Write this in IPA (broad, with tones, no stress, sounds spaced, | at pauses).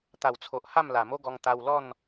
t̪ a˨˩ w t͡sʰ o˨ ʔ h a˥˧ m l a˨˩ m o˦ ɡ ɔ˧ ŋ t̪ a˧ w l ɔ˥˧ n